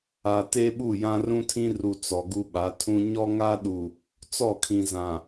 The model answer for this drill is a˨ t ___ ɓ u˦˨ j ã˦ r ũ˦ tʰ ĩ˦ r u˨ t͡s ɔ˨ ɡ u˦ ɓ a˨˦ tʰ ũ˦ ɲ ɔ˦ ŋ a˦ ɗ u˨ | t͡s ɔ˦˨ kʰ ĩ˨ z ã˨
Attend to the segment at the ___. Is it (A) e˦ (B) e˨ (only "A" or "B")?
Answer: A